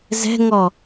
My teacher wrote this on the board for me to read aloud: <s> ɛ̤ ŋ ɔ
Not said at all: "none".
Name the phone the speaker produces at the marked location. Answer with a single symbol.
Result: z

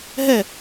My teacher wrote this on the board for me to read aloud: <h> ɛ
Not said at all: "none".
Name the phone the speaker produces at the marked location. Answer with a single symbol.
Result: ɦ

